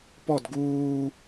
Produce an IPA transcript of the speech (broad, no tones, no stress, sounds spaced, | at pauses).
p ɔ d ɡ uː